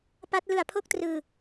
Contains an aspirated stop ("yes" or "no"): yes